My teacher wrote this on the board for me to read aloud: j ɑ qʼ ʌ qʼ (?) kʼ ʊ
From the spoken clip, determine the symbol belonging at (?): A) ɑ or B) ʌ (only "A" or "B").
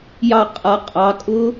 A